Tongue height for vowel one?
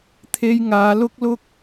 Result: mid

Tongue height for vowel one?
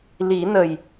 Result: high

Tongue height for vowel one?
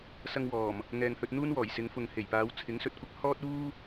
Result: low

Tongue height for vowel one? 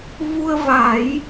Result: high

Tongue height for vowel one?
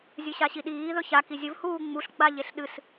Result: high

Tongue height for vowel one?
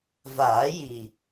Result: low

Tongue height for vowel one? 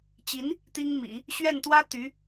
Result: high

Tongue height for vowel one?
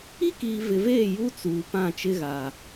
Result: high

